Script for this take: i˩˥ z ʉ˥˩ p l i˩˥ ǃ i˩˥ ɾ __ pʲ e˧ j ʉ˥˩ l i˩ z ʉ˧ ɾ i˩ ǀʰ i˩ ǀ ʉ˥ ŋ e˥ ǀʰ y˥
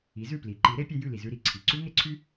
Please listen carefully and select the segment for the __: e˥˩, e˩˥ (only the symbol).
e˩˥